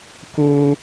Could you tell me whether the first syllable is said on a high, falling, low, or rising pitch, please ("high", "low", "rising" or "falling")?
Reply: high